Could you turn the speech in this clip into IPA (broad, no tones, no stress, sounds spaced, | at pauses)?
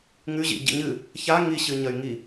ŋ ʉ ʑ ḭ ɟ ḭ ɲ ɨ | ç a ŋ i ɕ ɨ ɲ ɐ y̯ ŋ i